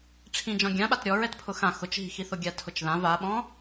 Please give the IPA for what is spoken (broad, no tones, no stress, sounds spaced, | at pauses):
ʈ͡ʂʰ ĩ d͡ʒ ɔ̃ ɡʲ ã ɓ a t ɾʲ ɔ ɹ ɛ t pʰ ʊ x ã x ʊ t͡ʃ ɦ i̤ x i θ ʊ ɡʲ a tʰ ʊ t͡ʃ ð ã v a ɓ ɔ̃